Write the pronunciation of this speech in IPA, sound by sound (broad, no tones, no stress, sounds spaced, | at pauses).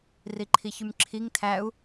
r i ǃʰ i ç y m ǁʰ i ŋ tʰ æ u̯